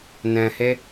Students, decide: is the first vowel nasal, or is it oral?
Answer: nasal